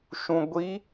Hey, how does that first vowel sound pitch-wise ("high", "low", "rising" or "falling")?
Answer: low